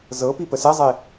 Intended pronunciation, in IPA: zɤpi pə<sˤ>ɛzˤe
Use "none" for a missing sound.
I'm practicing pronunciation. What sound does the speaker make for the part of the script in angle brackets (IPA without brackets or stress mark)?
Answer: s